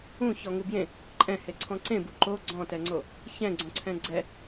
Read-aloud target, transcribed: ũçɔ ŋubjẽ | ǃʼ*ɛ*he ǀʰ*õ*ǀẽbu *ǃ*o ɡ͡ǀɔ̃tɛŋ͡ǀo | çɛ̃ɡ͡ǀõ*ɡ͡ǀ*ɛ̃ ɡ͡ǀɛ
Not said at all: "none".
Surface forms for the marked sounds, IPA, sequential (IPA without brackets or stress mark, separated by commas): ɛ̃, ɔ̃, ǃ, ǀʰ